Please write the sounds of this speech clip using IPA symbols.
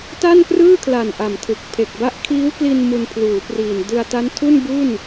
ta˥˩nkrɯː˥˩kʰla˨˩n ʔa˨˩mtʰɯ˨˩k̚ pʰe˨˩k̚ba˦˥ʔ kʰiː˦˥wkli˧n mu˧npʰluː˩˦priː˨˩n dɯ˧a̯ta˦˥ntʰu˥˩n bu˥˩n

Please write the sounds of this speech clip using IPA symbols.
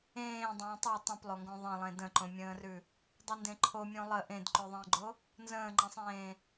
ẽː dˤə̃ːtˤu tˤũplˠoŋɡõ ðˤə̃lˠẽ də̃ǃõmʲə̃ːrʉ | dˤundẽǃʰomʲõ lˠə ʔẽdǃʉðˤə̃ːɡ͡ǃo | nzə̃ːŋ͡ǃẽsˤẽː

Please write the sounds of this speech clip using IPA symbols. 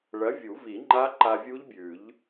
ɭɐ˨˥ vʲu˨˩˦vi˨˩˦ŋ͡ǃa˦˥ ǃa˧vʲu˦˥ʎbʲʉ˨˩˦ʎ

